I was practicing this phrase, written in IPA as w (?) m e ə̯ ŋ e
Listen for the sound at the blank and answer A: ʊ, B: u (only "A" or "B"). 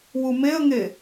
B